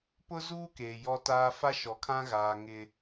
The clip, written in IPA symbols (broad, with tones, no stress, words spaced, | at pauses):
pʊ˦zuː˦ keː˨jɔ˦taː˦ fa˦ʃɔ˨˦kʰã˦ ɣaː˨ ŋɪ˦